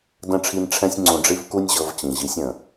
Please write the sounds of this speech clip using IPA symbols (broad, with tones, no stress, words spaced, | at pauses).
də̃˦˨ʈ͡ʂʰi˧n ʈ͡ʂʰɛ̃˦sʲŋ͡ǀũ˧ɖ͡ʐi˦v ku˦nʲʑɤ˧v t͡ɕĩ˨ʑi˨˦sʲə̃˨